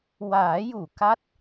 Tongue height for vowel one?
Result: low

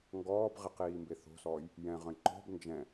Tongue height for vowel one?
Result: mid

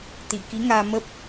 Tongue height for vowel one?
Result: high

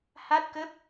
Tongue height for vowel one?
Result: low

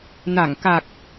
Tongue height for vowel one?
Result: low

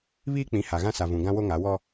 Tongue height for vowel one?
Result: high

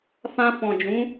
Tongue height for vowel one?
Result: low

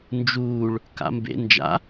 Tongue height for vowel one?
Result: high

